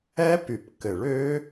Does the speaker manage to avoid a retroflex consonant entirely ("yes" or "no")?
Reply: no